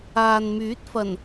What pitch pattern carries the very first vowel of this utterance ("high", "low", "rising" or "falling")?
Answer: low